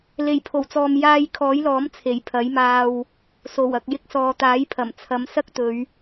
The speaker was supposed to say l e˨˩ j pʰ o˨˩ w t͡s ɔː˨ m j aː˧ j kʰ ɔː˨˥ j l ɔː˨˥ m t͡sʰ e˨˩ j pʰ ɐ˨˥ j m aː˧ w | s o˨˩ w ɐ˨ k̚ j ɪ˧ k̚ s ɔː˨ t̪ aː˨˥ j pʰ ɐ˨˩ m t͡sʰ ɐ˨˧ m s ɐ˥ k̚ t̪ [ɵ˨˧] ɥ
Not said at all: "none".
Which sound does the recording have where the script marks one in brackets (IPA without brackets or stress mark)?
ɵ˨˧